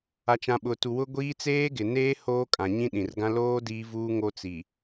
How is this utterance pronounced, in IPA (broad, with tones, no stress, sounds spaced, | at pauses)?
a˨ t͡ʃ ã˨ ɓ ʊ˨ t u˨ w ʊ˦ ɡʷ iː˦ t͡s eː˦ ɡ ɪ˨ n eː˦ h oː˦ kʼ ã˨ ɲ ĩ˦ ɗ ĩ˨ r ɡ ã˦ l oː˦ d iː˦ v uː˦ ŋ o˦ t͡s i˨